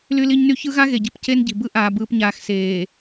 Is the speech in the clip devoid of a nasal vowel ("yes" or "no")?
yes